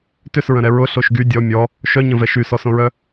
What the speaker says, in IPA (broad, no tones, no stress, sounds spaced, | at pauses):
t ʏ s ɹ ə̃ ɾ ɛ ɹ ʊ ɬ o ʃ ɡ y dʲ ɔ mʲ ɔ | ʃ œ ɲ ə̃ v ɛ ʃ y s ɔ s õ ɹ œ